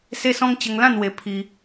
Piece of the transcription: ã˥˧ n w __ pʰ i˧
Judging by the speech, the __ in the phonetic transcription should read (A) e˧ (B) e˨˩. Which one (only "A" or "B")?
A